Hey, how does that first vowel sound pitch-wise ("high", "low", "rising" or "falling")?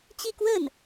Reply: falling